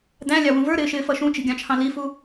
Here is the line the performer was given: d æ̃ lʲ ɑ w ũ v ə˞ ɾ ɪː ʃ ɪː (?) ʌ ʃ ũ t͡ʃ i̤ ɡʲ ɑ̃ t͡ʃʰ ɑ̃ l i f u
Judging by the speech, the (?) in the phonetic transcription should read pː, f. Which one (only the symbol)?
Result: f